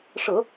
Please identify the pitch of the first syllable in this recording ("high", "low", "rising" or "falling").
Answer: low